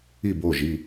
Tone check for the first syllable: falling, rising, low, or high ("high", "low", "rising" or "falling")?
falling